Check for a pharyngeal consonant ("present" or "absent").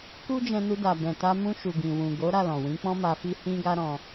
absent